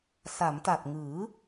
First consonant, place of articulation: alveolar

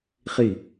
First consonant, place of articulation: uvular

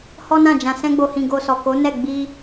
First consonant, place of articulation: glottal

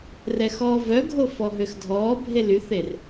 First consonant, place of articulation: alveolar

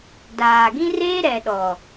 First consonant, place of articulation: alveolar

